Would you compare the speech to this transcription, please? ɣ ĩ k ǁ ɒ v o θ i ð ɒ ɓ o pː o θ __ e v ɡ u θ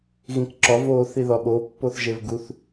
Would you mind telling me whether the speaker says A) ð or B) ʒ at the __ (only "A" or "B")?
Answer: B